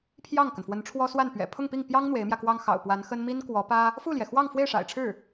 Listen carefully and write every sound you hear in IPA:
pʰjɑ˥˩ŋkə˩nfwə˧˥nʈ͡ʂʰwɔ˥ swa˥˩n pɥɛ̰˨˩ pʰʊ˥˧ŋpi˥˩ŋpjɑ˥ŋ n̪we˧˥ɪ̯mjä˧kwɑ˥ŋ xɑ̰˨˩ʊ̯pwa˧˥nxə˥n mi˥nkwɔ˧˥pä˥ | fu˥˩ljɛ˩ xwɑ˥˧ŋfwe˥˩ɪ̯ʂa̰˨˩ɪ̯ʈ͡ʂʰɻ̩˥˩

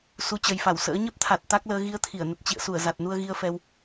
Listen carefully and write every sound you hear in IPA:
su˨˦t͡ɕə˨˩jfa˧˩w sə̰ː˧˥ ɲə˦˥p̚t̪ʰa˨˩t̚ t̪a˦˥k̚ləː˧ ɣi˧ə̯t̪ʰi˧˩ə̯nə˨˩t̚ t͡ɕḭ˧˨ə̯su˧˩ə̯ za˨˩t̚nu˧ə̯ɣi˧ə̯fɛ˧w

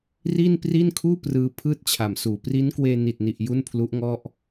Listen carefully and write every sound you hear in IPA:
ri˥˩n pri˥˩nkʰuː˥˩prɯː˧ pʰɯː˥˩t̚t͡ɕʰa˨˩msuː˨˩ pri˦˥nkweː˧ ni˨˩t̚ni˨˩ʔ ju˥˩npʰlu˦˥ʔŋɔ˥˩ʔ

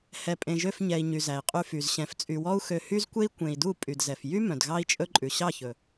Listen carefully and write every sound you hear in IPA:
hɛ˨pʼẽ˨ʒø˧f ɲɛ˨i̯ ɲy˨zæ˨i̯qʼy˧fy˨z ɕɛ̃˨ft͡sʼy˨wɔ˦u̯xø˧ hy˦zkʷe˦i̯ kʷẽ˨i̯du˦˨ pʼy˨dzɛ˨f jy˦ mœ̃˨dɣɑ˦i̯t͡ʃʼɵ˦ ǃʼʉ˨ ɕɑ˦˨çɵ˨

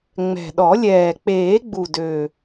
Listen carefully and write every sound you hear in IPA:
ŋ͡mɛ̤˨˩ɗɔ˨˩˦lʲɛː˨˩ k͡peː˨˩˦ɡ͡bu˨˩dø˨˩

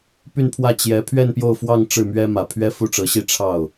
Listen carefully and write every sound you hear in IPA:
py˥˧npʰwä˥˩ t͡ɕjɛ˧˥ pʰɥɛ˥˧npjo˥˧ʊ̯fwɑ˥˧ŋ ʈ͡ʂɻ̩˥˩mɥɛ˥ mä˨˩ pʰɥɛ˥fu˥˩ʈ͡ʂɤ˧˥ɕi˥˧ ʈ͡ʂʰɑ˥˩ʊ̯

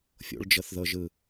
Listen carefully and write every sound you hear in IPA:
fʲo̰ɭd͡ʒɤθðɤʒɯ

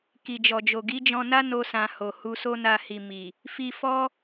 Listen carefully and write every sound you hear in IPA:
ki˨d͡ʒɔ˨d͡ʒo˨ ɡi˨˦d͡ʒɔ̃˧na˦no˧ sã˧ho˨ hu˧so˦na˧hi˨ mi˨ | fi˧fɔ˦

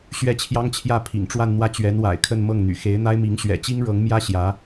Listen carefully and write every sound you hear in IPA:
ɕɥɛ˥˩t͡ɕʰjɑ˥ŋt͡ɕʰjä˥˩ pʰḭ˨˩ŋʈ͡ʂwa˥˧nn̪wä˥˩ t͡ɕɥɛ˧˥nwa̰˨˩ɪ̯kʰə˥˧n mɤ˥˩ŋn̪y̰˨˩ xe˧˥ɪ̯n̪a˥ɪ̯mi˧˥ŋ ɕɥɛ̰˨˩t͡ɕi˥ŋ ɻɤ˧˥ŋmjä˥ ɕjä˧˥

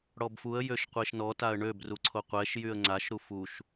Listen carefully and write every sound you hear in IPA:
ɽɔbfuə̯ jøʃqʷeʃnɔ taə̯ɳøb ruǀʰoqʷɛʃ jyə̯ŋ͡ǀaʃɾu fuʃ

